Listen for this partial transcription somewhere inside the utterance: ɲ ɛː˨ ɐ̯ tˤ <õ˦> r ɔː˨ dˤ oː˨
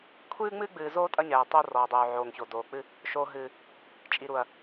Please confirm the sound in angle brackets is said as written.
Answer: no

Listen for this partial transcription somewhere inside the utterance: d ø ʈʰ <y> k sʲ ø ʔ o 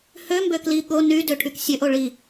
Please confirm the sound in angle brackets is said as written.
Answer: yes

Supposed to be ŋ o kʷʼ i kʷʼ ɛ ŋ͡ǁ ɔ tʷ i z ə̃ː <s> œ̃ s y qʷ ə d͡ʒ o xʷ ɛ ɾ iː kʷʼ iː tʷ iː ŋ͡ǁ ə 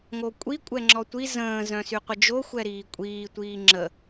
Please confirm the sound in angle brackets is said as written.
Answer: no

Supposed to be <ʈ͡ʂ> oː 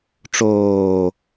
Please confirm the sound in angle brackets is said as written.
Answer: yes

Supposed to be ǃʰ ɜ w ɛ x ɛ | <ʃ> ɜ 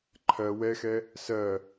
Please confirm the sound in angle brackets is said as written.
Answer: no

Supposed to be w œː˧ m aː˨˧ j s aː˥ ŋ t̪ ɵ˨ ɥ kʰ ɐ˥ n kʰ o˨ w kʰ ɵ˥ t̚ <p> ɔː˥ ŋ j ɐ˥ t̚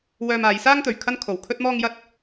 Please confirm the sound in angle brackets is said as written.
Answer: no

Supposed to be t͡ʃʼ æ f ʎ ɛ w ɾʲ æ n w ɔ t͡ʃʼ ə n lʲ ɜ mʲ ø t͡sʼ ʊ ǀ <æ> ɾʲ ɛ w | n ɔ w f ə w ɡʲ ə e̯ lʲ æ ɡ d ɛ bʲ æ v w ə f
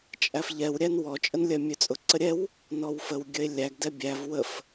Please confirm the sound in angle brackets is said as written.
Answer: no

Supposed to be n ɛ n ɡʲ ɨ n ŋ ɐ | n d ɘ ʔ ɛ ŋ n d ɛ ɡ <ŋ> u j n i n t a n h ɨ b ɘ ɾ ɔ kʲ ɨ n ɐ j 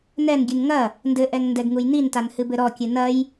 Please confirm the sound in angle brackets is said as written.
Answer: yes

